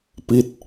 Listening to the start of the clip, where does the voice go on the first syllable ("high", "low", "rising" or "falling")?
falling